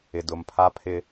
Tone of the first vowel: low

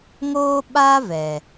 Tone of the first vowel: high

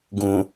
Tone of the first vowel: low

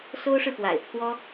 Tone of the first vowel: high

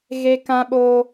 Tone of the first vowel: high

